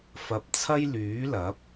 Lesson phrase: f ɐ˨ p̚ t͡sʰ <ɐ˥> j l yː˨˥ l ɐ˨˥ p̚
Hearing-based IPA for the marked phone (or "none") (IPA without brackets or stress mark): ɐ˥